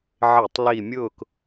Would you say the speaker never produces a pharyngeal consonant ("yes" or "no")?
no